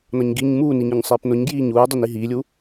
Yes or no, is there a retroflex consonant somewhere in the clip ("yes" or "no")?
no